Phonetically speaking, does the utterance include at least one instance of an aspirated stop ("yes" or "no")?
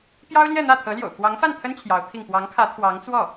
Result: yes